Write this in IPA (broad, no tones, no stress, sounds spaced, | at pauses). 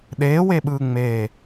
ɗ eː w e ɓ ɯː ŋ͡m eː